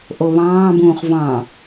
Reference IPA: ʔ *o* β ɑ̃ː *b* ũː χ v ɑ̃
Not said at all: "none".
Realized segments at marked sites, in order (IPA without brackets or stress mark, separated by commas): o, b